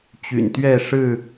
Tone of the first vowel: low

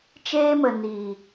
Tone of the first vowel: high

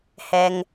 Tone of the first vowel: low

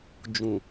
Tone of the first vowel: low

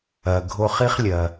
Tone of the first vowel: low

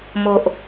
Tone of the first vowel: low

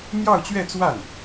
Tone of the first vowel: falling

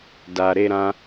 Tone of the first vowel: low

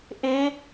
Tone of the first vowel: rising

